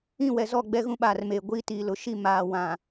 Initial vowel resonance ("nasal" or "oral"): nasal